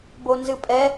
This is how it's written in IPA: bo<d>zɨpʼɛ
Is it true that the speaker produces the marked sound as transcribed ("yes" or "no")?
no